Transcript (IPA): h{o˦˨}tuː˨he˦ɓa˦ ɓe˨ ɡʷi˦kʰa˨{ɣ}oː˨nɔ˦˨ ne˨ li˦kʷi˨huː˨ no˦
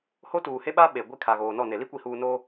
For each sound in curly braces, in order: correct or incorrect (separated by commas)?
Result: incorrect, correct